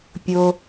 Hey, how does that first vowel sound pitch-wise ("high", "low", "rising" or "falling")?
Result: low